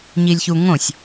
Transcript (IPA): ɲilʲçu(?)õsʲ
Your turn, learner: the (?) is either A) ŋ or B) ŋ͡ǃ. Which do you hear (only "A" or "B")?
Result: A